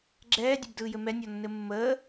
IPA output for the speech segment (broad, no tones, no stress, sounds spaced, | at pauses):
ɡ͡ǁ ɛː dʲ ɘ b d ɯː j ɘ m ɛ nʲ ɔ nː ɘ mː əː